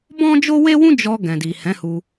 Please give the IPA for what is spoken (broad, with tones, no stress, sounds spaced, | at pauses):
b ɔ̃˦ d͡ʒ o˦ w e˦ w ũ˦ d͡ʒ ɔ˧ ɡ ɛ̃˨ d i˨ h ɛ̃˨˦ h u˧